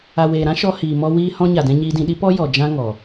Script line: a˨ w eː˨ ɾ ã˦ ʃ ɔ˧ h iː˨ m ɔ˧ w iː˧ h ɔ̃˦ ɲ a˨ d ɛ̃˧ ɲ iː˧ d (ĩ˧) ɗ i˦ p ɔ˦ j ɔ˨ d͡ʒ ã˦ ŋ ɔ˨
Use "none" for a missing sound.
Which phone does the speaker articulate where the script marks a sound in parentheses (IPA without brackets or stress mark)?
ĩ˧